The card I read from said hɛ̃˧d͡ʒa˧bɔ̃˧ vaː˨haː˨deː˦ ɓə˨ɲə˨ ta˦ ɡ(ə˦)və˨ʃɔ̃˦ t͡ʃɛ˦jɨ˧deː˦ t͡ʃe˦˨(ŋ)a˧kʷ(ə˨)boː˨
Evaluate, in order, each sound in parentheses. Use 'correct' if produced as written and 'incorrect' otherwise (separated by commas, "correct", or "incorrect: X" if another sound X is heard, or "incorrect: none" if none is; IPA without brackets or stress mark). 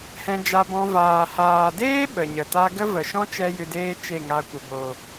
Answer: correct, correct, correct